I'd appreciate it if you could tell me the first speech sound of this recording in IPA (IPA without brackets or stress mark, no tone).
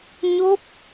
ɲ